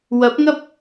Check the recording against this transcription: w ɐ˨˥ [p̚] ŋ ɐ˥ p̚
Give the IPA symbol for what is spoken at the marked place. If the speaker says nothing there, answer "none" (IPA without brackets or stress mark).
p̚